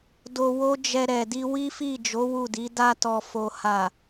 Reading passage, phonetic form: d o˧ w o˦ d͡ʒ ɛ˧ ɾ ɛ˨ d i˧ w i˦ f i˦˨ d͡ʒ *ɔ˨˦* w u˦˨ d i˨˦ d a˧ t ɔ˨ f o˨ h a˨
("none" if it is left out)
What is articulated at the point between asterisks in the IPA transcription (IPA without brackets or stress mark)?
o˨˦